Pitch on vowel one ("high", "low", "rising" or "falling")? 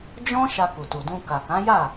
high